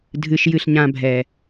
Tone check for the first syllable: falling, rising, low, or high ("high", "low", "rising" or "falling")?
high